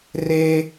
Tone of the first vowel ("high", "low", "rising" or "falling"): high